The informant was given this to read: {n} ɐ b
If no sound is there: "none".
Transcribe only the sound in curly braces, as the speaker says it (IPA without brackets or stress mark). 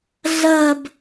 ɮ